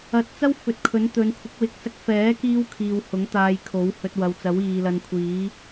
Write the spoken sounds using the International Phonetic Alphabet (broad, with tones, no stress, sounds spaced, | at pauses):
ɐ˨˥ t̚ t͡s ɐ˥ w f ɵ˨˥ t̚ kʰ ɵ˨˥ n t̪ ɵ˨˧ n kʷʰ ɪ˨˥ k̚ w ɪ˨ k̚ s ɐ˧ k̚ f ɛː˨˥ k iː˧ w kʰ iː˨ w h ʊ˨˥ ŋ t̪ aː˧ j kʰ o˨˥ w h ɵ˧ t̚ w ɐ˨ w t͡s ɐ˨˥ w iː˨ l ɐ˧ n kʷʰ iː˨˥